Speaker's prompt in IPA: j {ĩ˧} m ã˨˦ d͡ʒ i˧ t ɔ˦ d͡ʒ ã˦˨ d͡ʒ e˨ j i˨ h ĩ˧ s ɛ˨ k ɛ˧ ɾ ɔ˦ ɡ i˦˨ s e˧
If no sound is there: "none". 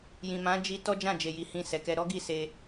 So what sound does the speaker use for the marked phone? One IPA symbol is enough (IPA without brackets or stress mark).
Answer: ĩ˨